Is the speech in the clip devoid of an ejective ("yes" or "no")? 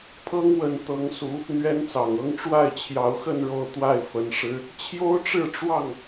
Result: yes